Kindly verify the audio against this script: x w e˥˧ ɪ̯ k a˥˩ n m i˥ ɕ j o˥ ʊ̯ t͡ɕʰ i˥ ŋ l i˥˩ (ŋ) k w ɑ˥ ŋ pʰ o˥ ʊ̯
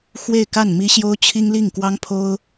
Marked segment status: correct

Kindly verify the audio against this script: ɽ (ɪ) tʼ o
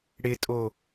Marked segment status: correct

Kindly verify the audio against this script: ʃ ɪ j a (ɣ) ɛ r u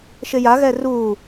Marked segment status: correct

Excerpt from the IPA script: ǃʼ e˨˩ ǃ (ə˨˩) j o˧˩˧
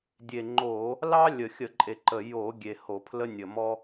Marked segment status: correct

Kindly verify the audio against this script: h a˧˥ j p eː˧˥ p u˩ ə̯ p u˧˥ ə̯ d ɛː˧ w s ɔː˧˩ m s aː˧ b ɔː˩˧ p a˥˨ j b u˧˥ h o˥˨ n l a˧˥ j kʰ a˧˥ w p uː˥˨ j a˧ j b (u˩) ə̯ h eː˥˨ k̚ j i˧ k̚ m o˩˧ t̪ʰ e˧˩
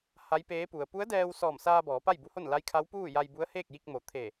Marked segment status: incorrect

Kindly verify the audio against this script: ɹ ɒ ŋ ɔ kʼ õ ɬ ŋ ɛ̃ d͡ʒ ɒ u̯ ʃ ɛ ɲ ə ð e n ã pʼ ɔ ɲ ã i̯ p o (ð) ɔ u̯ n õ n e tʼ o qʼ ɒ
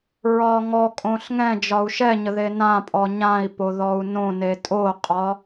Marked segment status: correct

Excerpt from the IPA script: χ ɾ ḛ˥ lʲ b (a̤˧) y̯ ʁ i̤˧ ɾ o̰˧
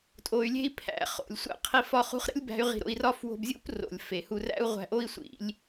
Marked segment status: incorrect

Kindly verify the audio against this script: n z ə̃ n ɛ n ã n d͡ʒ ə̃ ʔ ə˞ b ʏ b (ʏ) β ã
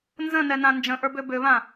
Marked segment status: correct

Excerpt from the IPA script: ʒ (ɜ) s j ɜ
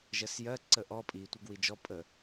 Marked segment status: correct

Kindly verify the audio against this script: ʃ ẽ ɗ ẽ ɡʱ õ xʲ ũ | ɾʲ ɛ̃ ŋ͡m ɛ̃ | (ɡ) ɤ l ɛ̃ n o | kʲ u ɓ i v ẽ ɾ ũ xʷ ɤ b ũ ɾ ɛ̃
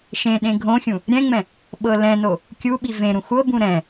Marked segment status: incorrect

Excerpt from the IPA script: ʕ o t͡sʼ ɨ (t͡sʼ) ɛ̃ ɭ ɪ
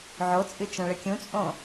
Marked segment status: incorrect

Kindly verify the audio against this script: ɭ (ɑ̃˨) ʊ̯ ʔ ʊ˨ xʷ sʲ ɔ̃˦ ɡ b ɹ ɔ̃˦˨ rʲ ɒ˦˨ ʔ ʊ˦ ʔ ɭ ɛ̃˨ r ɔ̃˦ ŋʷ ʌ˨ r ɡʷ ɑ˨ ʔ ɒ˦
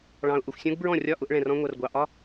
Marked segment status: correct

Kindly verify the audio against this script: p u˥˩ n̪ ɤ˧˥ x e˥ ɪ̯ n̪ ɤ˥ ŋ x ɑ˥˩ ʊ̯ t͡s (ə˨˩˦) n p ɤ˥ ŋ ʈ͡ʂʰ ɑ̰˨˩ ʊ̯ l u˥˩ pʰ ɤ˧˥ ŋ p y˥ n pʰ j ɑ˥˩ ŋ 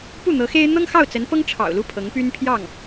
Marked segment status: incorrect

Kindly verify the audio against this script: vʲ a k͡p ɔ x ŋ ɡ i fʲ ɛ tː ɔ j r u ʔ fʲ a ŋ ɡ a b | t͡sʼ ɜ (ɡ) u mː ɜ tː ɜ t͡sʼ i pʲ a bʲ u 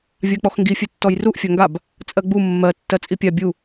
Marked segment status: incorrect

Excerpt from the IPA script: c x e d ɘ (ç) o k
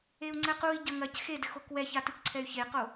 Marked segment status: incorrect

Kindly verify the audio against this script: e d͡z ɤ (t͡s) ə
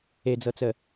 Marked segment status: correct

